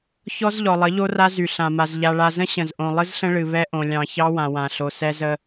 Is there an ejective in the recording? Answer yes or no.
no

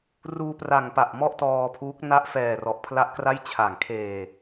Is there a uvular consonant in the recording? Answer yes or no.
no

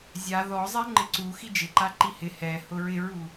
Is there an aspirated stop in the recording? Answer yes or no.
no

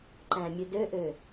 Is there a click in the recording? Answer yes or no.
yes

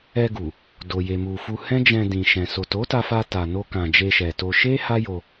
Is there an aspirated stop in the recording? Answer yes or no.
no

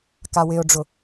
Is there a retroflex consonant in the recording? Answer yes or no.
yes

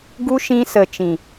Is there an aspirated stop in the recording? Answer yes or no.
no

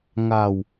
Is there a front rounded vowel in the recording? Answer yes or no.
no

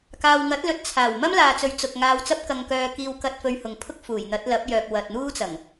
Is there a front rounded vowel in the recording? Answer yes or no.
yes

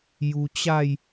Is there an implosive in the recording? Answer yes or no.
no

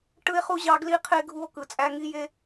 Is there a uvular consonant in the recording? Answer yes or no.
yes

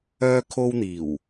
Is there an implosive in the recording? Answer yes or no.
no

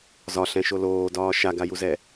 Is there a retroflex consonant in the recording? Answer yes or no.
no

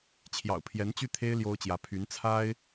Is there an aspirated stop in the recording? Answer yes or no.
yes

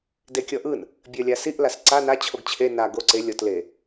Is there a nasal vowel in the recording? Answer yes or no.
no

